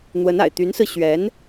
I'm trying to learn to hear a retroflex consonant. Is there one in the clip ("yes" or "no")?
no